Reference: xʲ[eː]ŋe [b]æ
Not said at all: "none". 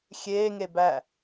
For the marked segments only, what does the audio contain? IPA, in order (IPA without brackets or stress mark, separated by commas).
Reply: eː, b